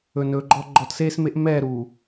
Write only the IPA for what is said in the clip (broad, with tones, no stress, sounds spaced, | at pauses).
ɵ˨ n ɵː˨ ɡ͡ǃ ɔ˦ ɡ͡ǃ ɔ˨ t s eː˦ s m e˦ ʔ m ɛː˦˨ ɾ uː˨